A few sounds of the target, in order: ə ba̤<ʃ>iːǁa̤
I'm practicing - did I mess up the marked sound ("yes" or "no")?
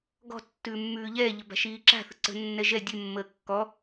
no